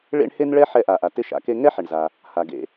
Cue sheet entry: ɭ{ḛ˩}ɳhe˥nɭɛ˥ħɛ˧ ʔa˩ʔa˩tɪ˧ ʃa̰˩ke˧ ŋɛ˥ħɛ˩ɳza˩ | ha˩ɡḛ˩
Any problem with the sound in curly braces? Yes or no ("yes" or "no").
yes